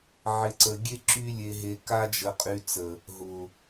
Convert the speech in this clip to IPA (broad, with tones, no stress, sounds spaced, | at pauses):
ʕ ɪ˨ ǀ ə˨ ɡʲ e˧ ǁ y˧ lʲ e˨ ɦ e˨ k a˧ d͡ʒ ə˨ qʼ y˨ t͡s ə˨ | ɦ ʊ˨